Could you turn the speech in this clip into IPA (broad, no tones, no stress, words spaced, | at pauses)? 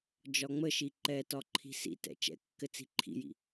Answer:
d͡ʒɒŋ͡məʃi ǃɛtɒ ǃʰi̤sḭtɛ̰ t͡ʃɛ̰kːɘ t͡si̤ǃʰḭjḭ